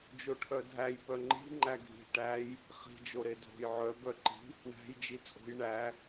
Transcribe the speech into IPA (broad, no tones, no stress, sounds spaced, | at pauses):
d͡ʒ o ʈʰ œ dʱ æ j p œ ŋ͡ǃ i̤ ŋ͡ǃ æ ɡʱ i̤ ʈ æ j | χ i̤ d͡ʒ o ɾ e dʱ o̤ j ʕ œ b œ ǃ i̤ | ɳ æ̤ j d͡ʒ i t͡sʼ o̤ j ɳ æ